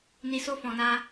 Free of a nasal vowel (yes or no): no